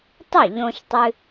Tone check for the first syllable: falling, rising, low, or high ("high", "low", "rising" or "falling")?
falling